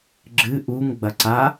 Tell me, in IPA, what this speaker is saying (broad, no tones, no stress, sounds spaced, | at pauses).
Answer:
ɡ͡ǁ ɨ ʔ u ŋ ɡ͡b ɐ ǀ a